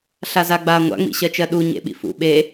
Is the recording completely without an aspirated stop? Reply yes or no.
yes